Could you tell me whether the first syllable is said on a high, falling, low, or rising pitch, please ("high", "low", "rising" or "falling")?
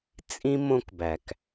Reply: high